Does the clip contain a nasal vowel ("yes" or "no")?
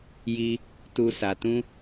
yes